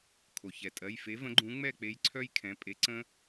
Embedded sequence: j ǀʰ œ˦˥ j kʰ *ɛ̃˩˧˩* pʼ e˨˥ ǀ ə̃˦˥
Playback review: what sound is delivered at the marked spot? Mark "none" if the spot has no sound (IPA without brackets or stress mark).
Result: ɛ̃˩˧˩